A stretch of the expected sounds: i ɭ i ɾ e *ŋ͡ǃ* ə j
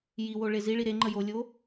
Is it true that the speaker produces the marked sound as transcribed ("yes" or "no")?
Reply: yes